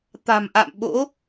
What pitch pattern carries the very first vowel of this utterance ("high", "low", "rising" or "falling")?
low